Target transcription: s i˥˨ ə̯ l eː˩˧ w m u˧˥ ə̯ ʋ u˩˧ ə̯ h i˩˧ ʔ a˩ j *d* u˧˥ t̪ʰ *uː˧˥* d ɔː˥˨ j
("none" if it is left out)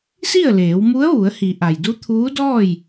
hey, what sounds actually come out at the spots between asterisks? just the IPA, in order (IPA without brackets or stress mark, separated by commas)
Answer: d, uː˧˥